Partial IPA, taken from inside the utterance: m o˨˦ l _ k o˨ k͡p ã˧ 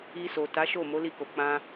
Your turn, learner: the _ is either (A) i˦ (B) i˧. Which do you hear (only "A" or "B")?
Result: B